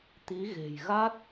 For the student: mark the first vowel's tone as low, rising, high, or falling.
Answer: rising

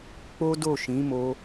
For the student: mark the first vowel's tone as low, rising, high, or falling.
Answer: high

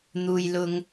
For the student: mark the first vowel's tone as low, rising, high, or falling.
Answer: low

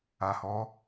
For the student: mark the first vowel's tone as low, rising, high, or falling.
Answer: low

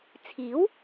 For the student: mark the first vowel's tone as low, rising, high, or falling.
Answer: rising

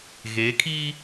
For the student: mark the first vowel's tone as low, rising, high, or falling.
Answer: rising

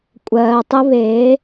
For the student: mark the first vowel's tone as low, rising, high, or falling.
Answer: low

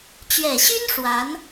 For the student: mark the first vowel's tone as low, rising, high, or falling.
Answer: low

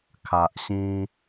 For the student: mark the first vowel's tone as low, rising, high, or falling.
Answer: low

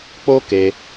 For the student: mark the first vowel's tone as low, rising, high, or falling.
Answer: high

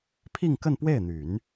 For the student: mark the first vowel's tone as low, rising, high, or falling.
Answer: falling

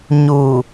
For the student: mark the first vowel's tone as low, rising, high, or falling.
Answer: low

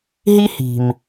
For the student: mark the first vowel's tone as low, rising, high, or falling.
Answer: high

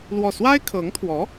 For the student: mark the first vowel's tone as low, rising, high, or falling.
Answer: falling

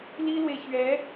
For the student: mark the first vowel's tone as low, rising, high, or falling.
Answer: high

